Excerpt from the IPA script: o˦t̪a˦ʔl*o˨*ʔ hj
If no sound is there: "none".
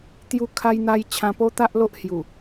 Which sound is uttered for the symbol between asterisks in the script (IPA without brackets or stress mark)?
o˦